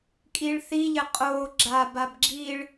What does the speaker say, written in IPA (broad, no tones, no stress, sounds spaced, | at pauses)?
kʼ i ɭ θ i ʎ ɘ qʼ o ɡ͡ǁ a b a b ɡ͡ǁ i ɭ